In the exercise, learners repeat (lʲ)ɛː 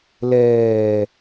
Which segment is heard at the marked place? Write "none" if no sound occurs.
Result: l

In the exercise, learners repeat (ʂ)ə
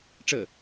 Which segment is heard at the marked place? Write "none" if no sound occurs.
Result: ʈ͡ʂ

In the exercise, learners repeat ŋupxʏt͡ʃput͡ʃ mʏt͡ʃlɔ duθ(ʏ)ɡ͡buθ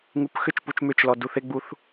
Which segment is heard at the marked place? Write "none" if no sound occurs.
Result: ɪ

